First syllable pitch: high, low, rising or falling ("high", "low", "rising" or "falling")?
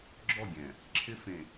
falling